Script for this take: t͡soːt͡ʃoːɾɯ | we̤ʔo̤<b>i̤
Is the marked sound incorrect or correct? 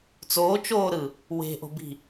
correct